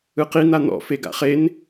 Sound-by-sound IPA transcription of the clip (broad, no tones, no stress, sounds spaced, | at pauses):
ɯ q i n̪ a n̪ ɔ̰ f e ɡ a̰ χ e n